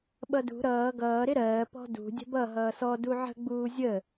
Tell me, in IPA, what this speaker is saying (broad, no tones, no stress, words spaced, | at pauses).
ɓʌdṳ ɾʌː ɡʌː ɾɪɾɜː pɔ̤dṳ dʲə̤bʌ ɦʌːsɔ duʕə̤ ɡ͡buːzʲə